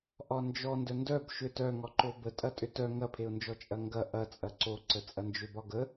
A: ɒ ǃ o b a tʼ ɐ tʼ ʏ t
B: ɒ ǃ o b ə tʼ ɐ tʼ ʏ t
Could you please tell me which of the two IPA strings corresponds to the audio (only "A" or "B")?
B